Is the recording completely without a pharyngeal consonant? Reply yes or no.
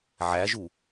no